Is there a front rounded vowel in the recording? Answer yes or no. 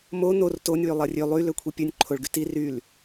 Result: yes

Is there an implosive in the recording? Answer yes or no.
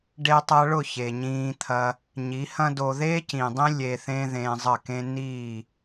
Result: no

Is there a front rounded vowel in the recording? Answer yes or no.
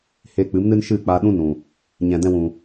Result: no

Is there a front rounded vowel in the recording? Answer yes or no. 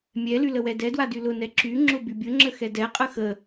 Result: yes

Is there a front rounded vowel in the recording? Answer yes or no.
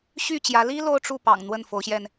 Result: yes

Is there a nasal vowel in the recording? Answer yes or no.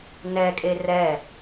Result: no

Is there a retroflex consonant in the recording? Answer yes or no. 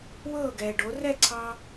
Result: yes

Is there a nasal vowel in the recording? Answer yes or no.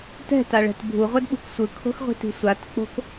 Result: no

